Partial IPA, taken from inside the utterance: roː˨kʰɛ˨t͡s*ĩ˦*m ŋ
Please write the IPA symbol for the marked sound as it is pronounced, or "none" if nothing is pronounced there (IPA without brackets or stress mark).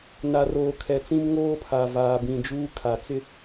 ĩ˦